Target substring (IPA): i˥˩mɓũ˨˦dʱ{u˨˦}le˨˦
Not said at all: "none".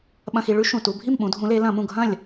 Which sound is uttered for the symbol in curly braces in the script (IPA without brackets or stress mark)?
ũ˨˦